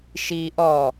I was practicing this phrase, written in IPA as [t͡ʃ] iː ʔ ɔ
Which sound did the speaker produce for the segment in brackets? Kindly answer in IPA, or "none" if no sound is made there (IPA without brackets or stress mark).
ʃ